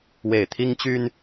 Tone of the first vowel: low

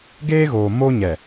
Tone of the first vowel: high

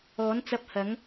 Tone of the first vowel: rising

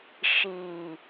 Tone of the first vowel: low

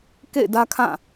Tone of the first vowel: falling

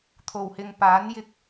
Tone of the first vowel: low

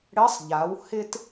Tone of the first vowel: rising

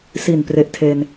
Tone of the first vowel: low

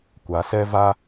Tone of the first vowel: rising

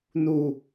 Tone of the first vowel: falling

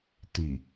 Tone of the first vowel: low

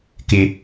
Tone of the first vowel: high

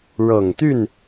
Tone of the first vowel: low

